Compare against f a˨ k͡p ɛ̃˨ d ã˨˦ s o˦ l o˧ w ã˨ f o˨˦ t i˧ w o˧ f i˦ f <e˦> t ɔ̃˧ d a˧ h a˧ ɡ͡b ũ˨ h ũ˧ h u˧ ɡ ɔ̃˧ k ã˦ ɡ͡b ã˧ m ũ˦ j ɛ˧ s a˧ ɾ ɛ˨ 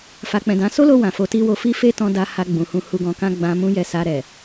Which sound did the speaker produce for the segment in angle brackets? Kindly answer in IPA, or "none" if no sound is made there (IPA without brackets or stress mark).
e˦